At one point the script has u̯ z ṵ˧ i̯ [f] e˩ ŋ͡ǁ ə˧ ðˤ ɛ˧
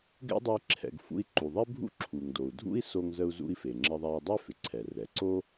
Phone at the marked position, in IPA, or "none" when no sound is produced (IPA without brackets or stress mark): f